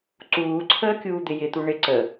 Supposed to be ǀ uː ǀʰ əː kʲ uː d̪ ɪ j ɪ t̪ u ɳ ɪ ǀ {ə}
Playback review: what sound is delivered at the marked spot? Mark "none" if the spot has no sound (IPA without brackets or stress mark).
ə